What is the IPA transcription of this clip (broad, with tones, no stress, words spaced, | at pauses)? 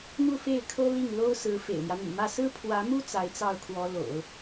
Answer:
n̪u˥˧fe˥˩ɪ̯kʰɤ˥ li˥˩ŋ lo˥ʊ̯sɹ̩˧˥ fḛ˨˩ɪ̯mjä˦n̪y̰˨˩mä˥˩ sɹ̩˥pʰwä˧˥mu˥ t͡sa˧˥ɪ̯t͡sɑ˥˩ʊ̯kʰwɔ˧˥ lo̰˨˩˦ʊ̯